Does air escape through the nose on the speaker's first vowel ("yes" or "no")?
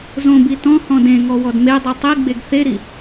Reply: yes